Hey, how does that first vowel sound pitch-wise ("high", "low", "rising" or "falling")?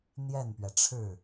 falling